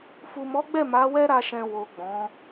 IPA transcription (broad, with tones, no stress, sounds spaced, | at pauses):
f u˨ m ɔ˨˦ ɡ͡b ɛ˦˨ m a˨˦ w ɛ˦ ɾ a˧ ʃ ɛ̃˨ w o˨ ɡ͡b ɔ̃˨˦